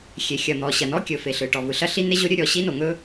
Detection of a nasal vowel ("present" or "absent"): absent